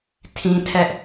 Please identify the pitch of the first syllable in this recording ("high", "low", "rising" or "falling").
high